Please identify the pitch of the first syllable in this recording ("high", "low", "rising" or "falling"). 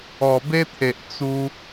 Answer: low